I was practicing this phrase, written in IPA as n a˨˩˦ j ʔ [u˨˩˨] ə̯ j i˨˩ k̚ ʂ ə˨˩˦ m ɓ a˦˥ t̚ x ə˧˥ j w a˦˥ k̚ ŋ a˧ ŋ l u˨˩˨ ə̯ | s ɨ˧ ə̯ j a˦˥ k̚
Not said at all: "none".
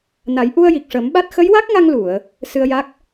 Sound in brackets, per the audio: u˧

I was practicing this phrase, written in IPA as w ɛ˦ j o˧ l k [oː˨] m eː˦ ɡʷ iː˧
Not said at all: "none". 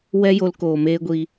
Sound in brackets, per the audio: oː˨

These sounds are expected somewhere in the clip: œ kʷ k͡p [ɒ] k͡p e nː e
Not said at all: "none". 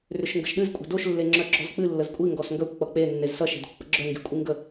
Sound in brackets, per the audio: ʌ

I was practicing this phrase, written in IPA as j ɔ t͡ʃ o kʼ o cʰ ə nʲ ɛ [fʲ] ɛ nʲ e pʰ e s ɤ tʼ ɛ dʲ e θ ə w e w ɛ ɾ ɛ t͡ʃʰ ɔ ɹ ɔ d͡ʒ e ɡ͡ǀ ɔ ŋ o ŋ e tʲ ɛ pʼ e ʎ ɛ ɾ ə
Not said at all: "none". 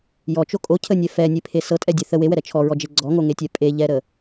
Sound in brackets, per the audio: f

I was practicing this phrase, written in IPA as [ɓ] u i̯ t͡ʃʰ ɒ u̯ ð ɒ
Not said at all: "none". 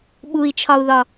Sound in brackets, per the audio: ɓ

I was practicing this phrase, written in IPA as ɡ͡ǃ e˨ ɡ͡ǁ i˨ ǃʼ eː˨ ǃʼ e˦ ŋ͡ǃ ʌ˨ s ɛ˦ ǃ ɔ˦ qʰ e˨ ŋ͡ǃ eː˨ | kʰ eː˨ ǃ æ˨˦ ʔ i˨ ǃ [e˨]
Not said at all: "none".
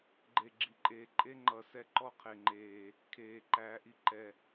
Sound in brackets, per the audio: ɛ˨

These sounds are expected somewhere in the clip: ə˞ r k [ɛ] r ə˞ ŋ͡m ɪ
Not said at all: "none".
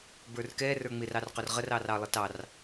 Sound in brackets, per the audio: ɛ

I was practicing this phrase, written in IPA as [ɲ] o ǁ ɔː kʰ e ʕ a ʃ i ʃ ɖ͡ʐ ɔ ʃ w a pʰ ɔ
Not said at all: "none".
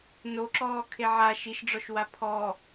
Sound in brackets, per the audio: n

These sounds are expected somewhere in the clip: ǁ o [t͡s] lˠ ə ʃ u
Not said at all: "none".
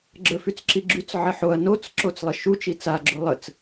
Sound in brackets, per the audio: t͡s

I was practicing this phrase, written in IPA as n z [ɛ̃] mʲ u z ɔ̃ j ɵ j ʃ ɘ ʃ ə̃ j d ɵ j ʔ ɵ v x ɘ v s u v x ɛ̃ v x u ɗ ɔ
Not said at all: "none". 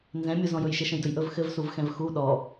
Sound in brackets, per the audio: ɛ̃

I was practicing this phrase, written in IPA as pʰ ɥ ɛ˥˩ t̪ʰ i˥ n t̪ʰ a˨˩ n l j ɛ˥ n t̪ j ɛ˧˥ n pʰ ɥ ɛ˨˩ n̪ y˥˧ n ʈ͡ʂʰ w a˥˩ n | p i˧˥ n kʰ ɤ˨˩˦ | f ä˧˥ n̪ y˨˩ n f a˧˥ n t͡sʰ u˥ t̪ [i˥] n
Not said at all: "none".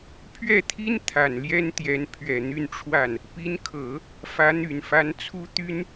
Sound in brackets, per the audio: y˥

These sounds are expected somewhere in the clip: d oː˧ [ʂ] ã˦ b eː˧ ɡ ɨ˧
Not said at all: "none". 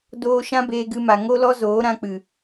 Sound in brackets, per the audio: ʃ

